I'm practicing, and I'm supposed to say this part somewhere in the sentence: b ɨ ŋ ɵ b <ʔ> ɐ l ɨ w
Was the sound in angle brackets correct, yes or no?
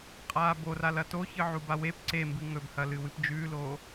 no